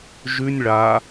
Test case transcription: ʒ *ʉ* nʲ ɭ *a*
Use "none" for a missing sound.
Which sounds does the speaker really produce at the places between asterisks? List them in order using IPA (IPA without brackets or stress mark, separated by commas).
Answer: ʉ, a